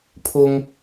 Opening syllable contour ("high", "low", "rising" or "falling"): high